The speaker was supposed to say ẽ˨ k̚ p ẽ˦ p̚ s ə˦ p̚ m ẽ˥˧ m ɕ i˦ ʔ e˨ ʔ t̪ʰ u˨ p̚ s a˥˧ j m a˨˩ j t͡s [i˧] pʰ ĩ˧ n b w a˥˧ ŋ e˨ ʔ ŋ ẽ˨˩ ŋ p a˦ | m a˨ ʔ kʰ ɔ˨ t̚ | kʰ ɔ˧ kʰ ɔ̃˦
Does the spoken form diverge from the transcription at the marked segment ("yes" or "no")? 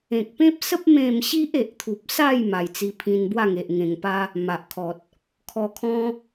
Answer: no